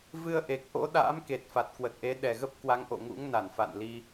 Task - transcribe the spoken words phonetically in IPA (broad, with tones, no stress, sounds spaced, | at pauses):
v ɨ˧ ə̯ ʔ e˨˩ k̚ ʔ o̰˧˥ ɗ a̰ː˧˥ m k e˨˩ t̚ f a˨˩ t̚ k w ə˨˩ t̚ ʔ e˨˦ ɗ ɛ˨˩ ɣ ə˦˥ p̚ k w a˨˦ ŋ ʔ o̰˧˨ ŋ ṵ˧˥ ŋ n a˧˩ n f a̰˧˨ n l i˧